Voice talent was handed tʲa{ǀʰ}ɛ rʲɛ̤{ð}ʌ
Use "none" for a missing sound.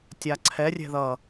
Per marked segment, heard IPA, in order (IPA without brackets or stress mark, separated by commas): ǀʰ, ð